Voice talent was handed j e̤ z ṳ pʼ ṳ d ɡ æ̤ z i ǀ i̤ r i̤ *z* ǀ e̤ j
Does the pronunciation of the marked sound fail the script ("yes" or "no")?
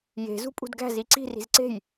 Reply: no